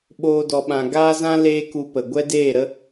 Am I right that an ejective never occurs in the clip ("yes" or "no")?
yes